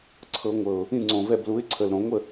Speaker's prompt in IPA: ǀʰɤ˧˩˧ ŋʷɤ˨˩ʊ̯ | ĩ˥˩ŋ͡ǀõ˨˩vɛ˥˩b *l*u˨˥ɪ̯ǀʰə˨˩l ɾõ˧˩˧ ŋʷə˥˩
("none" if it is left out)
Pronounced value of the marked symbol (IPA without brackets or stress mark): l